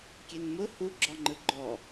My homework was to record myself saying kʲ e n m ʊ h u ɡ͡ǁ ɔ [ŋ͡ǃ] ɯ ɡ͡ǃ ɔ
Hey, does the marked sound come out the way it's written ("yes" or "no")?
yes